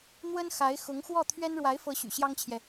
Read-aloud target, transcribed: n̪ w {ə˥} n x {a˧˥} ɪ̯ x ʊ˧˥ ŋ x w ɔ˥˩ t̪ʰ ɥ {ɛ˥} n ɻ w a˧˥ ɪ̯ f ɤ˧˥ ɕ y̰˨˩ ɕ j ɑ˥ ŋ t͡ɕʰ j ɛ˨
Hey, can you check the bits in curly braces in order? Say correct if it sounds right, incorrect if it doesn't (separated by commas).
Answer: correct, correct, correct